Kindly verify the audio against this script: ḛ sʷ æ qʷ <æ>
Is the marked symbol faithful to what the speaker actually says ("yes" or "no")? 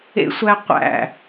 no